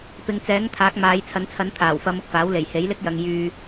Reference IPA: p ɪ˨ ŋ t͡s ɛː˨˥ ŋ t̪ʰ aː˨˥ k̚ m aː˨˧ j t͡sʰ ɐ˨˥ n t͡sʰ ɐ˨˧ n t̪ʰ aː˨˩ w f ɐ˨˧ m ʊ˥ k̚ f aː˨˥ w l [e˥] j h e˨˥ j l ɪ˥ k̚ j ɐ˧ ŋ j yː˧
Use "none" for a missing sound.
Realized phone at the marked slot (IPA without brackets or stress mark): e˨˩